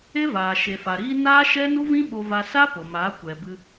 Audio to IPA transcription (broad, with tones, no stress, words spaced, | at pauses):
e˦vaː˨ ʃe˨fa˨ɾiː˦ naː˦ʃɛ˦ nu˦vĩ˦ ɓo˧va˧ sa˦ po˨maː˨˦ kʷɛ˨bɨ˧